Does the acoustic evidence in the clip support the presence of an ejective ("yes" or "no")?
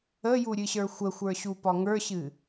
no